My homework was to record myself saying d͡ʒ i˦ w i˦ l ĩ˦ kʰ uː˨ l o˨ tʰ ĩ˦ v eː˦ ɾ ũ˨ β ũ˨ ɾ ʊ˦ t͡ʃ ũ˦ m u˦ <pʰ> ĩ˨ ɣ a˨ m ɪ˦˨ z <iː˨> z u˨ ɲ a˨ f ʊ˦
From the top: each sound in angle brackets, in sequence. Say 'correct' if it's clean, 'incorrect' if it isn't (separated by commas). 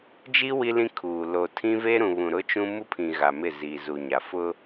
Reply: correct, correct